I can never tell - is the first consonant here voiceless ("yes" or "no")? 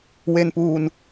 no